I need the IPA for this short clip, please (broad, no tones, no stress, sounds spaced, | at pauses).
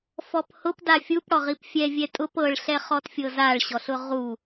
f ɔ p h ʊ p d a fʲ u p ɽ ɔ ʁ i p fʲ ɛ vʲ ɛ tʼ ʊ p ɤ ɭ ɬ ɛ χ ɔ t fʲ ɤ z a ɭ ɕ ɔ ɬ ʊ ʁ u